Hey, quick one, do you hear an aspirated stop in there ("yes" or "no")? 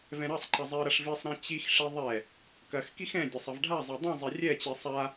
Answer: no